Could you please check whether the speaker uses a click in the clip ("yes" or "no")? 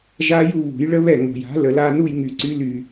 yes